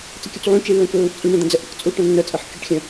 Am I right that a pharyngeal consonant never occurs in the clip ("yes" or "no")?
no